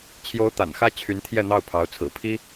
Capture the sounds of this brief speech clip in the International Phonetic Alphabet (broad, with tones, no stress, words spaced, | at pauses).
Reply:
t͡ɕʰjo˧˥ʊ̯ t̪a̰˨˩nxä˥ t͡ɕʰy˧˥nt̪ʰjɛ˥˧n̪ɑ˥˩ʊ̯pʰɑ˧˥ʊ̯ t͡sʰɹ̩˨˩pʰi˥